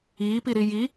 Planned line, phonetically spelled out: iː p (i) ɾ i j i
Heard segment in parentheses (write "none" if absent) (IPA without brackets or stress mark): i